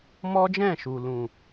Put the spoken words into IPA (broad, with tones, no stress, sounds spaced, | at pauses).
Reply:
m ɔ˦ d͡ʒ ɛ̃˦˨ ʃ u˨ l ũ˨